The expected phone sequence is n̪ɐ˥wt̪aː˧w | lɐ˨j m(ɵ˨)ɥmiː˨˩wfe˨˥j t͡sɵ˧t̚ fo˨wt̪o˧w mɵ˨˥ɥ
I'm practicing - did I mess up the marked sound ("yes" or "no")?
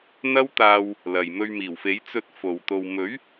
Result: yes